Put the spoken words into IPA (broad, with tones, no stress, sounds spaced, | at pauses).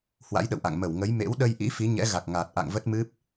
h w a̰˧˥ j ɗ ə̰˧˨ w ʔ a̰˧˨ ŋ m ə˧˩ w ŋ ə˨˦ j m ḛ˧˥ w ɗ ə˧ j ʔ ḭ˧˥ f i˨˦ ɲ ɛ̰˧˥ ɣ a˨˩ k̚ ŋ aː˨˩ t̚ ʔ a̰˧˨ ŋ v ə˦˥ t̚ m ɨ˦˥ p̚